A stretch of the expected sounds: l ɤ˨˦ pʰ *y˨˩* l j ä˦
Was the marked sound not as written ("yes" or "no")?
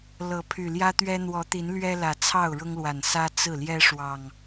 no